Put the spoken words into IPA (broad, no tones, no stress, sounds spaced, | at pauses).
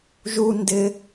ʒ u n d ɪ